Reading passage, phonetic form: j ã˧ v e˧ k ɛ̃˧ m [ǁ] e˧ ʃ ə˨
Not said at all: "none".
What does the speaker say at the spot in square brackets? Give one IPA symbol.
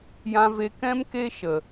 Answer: k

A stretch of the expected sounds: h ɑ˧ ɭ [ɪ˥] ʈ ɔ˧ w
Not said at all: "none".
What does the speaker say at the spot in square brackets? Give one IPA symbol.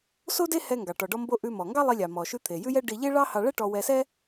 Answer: ɛ˥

